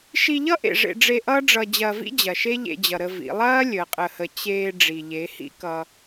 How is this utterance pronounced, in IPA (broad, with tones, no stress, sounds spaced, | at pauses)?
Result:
ʃ i˧ ʎ ʌ˦ ʔ ḛ˨ ʐ ḛ˧ ɖ͡ʐ e˧ ʔ ʌː˦ ɖ͡ʐ ʌ˧ d͡ʑ ɐː˧ v ḭ˦ d͡ʑ ɐ˨ ʃ e˦ ʎ ḛ˧ d͡ʑ ʌ˨ ɾ ə˧ v ḭ˨˦ lˠ ɐː˦ lʲ əː˨ qʼ ə˨ h ə˨ t͡ɕ eː˧ ɖ͡ʐ i˨ ʎ e˨˦ h ḭ˦ k ʌ˧